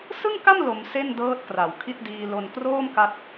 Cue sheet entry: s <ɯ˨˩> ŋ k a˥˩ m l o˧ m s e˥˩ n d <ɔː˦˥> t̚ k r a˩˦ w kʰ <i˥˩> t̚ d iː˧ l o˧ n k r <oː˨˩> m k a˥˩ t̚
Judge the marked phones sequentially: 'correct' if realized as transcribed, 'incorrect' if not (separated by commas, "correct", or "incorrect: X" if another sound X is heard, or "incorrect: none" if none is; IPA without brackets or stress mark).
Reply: incorrect: ɯ˥˩, incorrect: ɤː˦˥, correct, incorrect: oː˥˩